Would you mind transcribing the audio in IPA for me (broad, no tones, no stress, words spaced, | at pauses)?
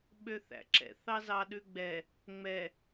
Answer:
ɓøθæ̰ǁɛ̰ θɑzɑɗʉɡ͡bɛ | ŋ͡mɛ